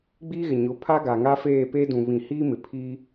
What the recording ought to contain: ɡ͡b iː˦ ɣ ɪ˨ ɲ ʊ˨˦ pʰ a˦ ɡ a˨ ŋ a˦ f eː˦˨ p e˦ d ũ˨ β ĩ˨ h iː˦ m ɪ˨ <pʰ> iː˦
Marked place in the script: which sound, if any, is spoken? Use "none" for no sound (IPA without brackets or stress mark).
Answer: pʰ